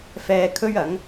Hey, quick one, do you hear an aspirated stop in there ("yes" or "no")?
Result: yes